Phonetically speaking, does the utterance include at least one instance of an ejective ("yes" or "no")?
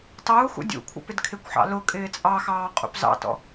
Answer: yes